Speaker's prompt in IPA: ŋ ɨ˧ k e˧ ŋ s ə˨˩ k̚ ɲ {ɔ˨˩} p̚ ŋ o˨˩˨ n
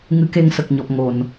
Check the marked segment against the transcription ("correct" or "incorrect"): correct